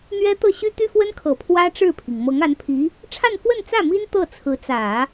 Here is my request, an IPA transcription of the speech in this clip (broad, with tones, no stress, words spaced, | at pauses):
n̪ɥɛ˥t̪ɤ˥˩ ɕy˥t̪y˥fwə˥nkʰɤ˨˩ pʰwä˥ ʈ͡ʂɻ̩˥˩pʰi˩ŋ mɤ˧˥ŋa˧˥npʰi˧˥ | ʈ͡ʂʰa˥˧nfwə˥˧nt͡sä˥˩ mi˥n t̪ɤ˥˩t͡sʰɹ̩˧˥t͡sä˨˩˦